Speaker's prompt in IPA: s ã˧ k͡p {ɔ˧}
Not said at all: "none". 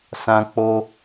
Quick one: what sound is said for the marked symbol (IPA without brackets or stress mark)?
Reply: o˧